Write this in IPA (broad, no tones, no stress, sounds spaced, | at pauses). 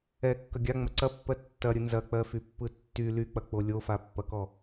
ɛ kː ɐ ɡʲ a ŋ͡m ɐ ǀ ɐ pː ɜ tː ɐ ɾʲ ɯ n z ɐ k͡p ɜ f y pː ɯ tː y l y k͡p ɐ k͡p o lʲ o f a pː ɐ k ɔ